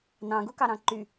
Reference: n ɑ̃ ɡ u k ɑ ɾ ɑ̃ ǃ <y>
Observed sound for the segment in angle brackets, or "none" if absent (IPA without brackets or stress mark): y